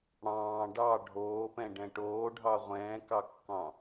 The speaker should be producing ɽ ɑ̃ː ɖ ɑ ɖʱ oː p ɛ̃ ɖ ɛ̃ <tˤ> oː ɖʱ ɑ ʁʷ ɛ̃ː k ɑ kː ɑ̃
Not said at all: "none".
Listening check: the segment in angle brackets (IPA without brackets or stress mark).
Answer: ʈ